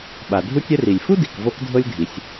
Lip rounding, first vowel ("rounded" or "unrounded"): unrounded